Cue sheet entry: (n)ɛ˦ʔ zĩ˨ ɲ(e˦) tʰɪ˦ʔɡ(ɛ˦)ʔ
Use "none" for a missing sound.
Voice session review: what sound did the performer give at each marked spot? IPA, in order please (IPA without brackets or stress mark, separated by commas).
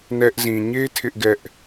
n, e˦, ɛ˦